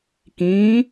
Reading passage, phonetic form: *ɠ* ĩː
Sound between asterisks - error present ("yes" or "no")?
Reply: yes